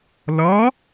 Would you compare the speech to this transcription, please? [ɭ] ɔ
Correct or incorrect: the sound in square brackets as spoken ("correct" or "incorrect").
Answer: incorrect